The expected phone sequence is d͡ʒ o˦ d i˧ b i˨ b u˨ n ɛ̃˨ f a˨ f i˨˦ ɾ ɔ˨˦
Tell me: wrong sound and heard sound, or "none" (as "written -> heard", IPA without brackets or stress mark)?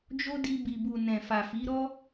ɔ˨˦ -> ɔ˦